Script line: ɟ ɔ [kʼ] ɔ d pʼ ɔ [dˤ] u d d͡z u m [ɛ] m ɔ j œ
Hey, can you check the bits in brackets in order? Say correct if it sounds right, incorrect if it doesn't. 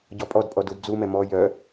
incorrect: pʼ, incorrect: d, correct

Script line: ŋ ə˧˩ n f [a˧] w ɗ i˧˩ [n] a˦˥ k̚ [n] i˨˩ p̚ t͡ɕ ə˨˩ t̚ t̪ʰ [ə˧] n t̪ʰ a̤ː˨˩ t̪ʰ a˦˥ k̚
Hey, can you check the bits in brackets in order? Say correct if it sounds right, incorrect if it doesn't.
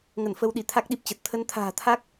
incorrect: ə˧, incorrect: t̪ʰ, incorrect: ɗ, correct

